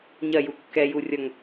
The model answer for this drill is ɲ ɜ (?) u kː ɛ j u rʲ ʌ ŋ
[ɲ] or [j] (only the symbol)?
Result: j